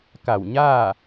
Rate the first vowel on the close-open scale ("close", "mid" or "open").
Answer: open